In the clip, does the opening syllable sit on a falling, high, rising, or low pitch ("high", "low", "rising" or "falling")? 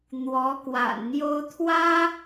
rising